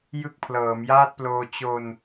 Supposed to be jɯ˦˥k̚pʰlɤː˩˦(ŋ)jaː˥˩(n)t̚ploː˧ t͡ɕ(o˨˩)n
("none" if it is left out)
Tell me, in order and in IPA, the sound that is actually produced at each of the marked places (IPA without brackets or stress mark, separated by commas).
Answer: m, none, o˧